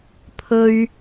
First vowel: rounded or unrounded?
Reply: rounded